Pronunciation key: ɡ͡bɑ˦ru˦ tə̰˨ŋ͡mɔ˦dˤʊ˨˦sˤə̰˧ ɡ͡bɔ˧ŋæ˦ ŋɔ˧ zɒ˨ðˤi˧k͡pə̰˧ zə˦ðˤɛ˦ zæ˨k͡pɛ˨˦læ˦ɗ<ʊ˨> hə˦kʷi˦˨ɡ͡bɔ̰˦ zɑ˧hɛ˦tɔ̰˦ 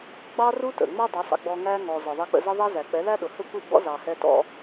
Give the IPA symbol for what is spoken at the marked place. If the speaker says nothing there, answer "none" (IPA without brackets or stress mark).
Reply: ʊ˨